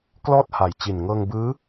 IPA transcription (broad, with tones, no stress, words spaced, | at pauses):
klɔː˥˩t̚ha˨˩jt͡ɕi˨˩n ŋɤː˧ŋbɯː˦˥